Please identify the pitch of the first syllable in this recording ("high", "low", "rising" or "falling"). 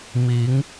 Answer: rising